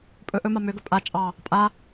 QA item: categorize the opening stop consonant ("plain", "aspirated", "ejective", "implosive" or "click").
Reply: ejective